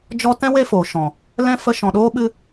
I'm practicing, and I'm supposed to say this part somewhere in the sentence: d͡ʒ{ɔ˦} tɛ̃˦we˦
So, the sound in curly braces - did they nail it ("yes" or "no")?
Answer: yes